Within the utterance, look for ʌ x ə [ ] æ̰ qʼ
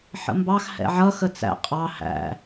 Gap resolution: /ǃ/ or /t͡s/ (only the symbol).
t͡s